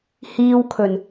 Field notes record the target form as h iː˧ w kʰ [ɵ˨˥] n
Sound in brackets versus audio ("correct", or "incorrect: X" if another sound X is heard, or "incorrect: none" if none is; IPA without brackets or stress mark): incorrect: ɵ˨˩